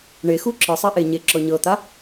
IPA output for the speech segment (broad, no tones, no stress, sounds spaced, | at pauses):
ɳ e x u ǁ ɯ sˤ e ʔ e ɲ e ǁ ɔ ɲ ɤ t̪ a